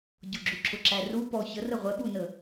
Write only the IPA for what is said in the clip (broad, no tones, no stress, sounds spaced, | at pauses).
ɟ ʊ ɡ͡ǁ u ǁʰ ʊ ǁ æ r u p ɔ ç ə r ə ʁʷ ɛ ɓ u n ə